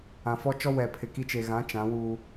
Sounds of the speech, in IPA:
ã˨ f ɔ˦ t͡ʃ ɔ˦ w ɛ˨ pʰ ɪ˨ k i˦ t͡ʃ e˨ ɣ ã˨˦ t͡ʃ ã˨˦ w uː˦

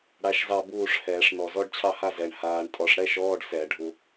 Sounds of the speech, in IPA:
ɽ a˧˥˧ ʃ z ɑ˥˨ b uː˥˨ ʂ h ɛː˧˩˧ ʂ n ɔ˨˩ z ɔ˧˥˧ ɖ t͡ɕʰ ɑ˥˨ h a˥˨ z ɛ˨˩ ɳ h aː˧ ɳ tʼ ɔ˧˩˧ ʂ ɽ ɛ˧˥˧ ʃ ɔː˧˥˧ ɖ s ɛ˧˩˧ ɖʱ u˧

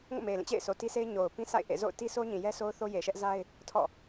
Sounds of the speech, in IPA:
ŋ o̰˦˨ m e˨ ɪ̯ l ĩ˦˨ t͡ɕ ḛ˦˨ ɪ̯ sʰ o˨ t i˦ s e˦ ɪ̯ ɲ o˨ ʊ̯ p ĩ˦ s a̰˦˨ ɪ̯ ʔ ḛ˦˨ z o̰˦˨ ʊ̯ t i˦ sʰ o˦ ɲ ĩ˨ j ɛ˦ sʰ o˦ ʊ̯ θ o˦ j e˨ ʃ ɛ˦ ʔ z a˦ ɪ̯ | tʰ ɔ̰˦˨

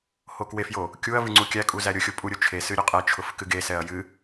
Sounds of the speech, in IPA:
h o k w e f j o | kʲ u ɐ̯ v ɨ ŋ͡ǀ u kʲ æ kʼ u z æ ɾʲ ʊ xʲ ʊ pʼ u ɾʲ ʊ t͡ʃʰ e s ɨ ɾʲ ʊ qʼ ɛ t͡ʃʰ ʊ f k ɨ ɡ e s ɛ ɐ̯ j ɨ

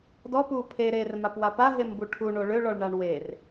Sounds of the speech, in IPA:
d ɔ p uː pʰ e ɾ eː r m a p w a p a ɦ e m b u ʈʰ u ɳ o ɭ ø ɭ ɔ ɭ ɳ a ɳ w e r

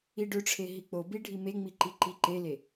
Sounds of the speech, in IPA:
i ɖ ø ʈ͡ʂʰ e ɦ i k͡p o b i ɖʱ i m e ŋ͡m i ǃ i ǃ i ǃ e l e

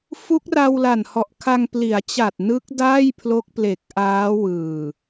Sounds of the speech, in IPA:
f u˦˥ k̚ r a˧ w l a˨˩ n h ɔ˨˩ ʔ kʰ a˧ ŋ p l i˩˦ a̯ t͡ɕ a˨˩ t̚ n ɯ˦˥ k̚ d aː˥˩ j pʰ l o˦˥ k̚ p l e˨˩ k̚ ʔ aː˦˥ w ɯː˨˩

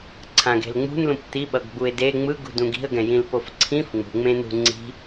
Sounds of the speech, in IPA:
ǀʰ ã ɡ e̤ l ŋ͡m ṳ n l ũ p t̪ i ɓ ʌ ɡ ɡ͡b u ɪ̯ d e ŋ͡m ɯ ɡ ṳ d ũ ɡ i̤ ə̯ ɡ ɛ̃ j ĩ l p o f ǀʰ ĩ f ŋ͡m ṳ ŋ͡m ẽ n ṳ ŋ͡ǀ i̤

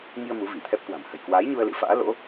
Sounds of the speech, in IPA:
ŋ i˧ ə̯ m u˨˦ v i˧˩ t̪ʰ ɛ˦˥ p̚ k w a̤˨˩ m h ə̤˨˩ j k w aː˨˦ j ɲ u˧ ə̯ l ɨ̰˧˥ f a̰ː˧˥ l o̰˧˥

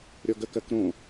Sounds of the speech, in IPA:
ɾʲ ɔ ɡ ə k ɜ k ɾ õ

